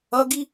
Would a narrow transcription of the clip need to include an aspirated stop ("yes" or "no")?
no